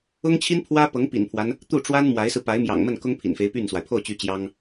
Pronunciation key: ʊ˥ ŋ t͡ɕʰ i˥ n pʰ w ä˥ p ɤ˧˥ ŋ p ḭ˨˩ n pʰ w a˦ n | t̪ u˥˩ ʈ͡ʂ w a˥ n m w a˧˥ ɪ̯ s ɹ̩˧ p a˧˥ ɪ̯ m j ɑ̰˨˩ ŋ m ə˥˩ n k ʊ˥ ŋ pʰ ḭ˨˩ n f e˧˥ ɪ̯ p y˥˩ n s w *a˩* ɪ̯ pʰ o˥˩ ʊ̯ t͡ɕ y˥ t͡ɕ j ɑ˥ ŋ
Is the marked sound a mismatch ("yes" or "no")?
no